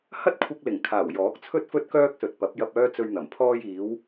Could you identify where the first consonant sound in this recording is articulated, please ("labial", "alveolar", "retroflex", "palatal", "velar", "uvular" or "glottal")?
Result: glottal